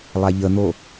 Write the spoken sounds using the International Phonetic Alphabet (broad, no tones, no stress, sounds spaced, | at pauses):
lˠ a ʎ ə n̪ o